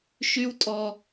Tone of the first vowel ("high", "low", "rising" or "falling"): high